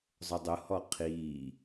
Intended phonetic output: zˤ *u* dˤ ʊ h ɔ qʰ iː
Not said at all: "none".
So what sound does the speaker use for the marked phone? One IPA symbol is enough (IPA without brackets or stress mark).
ʊ